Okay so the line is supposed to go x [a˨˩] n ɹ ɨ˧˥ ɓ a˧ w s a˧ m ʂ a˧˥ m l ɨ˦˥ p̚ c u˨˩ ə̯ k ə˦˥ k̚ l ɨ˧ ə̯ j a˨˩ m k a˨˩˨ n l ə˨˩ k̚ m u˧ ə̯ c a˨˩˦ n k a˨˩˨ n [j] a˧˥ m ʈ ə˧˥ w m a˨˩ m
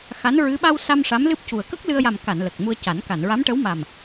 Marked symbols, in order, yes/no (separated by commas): no, no